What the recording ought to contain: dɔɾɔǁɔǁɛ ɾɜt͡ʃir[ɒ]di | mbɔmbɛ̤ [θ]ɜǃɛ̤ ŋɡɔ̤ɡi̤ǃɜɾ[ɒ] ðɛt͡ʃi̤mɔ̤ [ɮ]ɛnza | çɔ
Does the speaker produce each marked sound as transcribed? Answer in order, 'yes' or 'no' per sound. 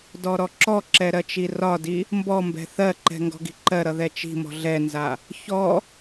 yes, yes, no, yes

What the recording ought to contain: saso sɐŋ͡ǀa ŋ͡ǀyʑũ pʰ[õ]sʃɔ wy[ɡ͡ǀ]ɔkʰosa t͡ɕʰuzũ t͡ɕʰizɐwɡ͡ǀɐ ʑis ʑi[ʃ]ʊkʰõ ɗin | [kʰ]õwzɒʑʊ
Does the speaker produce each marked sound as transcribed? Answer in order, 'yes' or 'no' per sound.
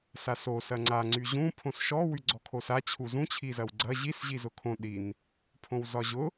yes, yes, no, no

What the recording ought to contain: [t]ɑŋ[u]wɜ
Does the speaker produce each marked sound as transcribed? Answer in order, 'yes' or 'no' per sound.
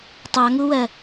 no, yes

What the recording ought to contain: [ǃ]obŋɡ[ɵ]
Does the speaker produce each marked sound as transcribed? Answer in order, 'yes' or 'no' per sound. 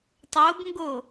no, no

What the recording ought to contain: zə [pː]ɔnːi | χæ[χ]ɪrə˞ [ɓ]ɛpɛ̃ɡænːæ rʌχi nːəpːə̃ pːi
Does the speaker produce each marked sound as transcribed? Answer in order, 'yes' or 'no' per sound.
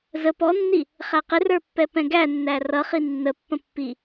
no, no, no

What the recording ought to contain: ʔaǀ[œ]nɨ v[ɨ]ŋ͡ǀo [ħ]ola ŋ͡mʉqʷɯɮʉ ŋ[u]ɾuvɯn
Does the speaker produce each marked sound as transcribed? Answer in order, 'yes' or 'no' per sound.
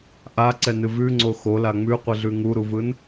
no, no, no, yes

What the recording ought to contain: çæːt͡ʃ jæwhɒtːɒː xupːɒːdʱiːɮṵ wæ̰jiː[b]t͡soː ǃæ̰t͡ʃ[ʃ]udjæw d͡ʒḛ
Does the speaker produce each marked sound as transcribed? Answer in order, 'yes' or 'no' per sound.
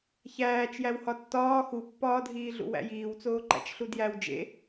no, no

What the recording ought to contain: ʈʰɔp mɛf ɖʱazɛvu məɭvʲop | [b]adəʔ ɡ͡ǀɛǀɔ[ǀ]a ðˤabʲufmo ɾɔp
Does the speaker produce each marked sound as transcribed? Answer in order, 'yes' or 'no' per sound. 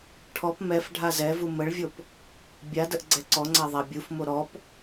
no, no

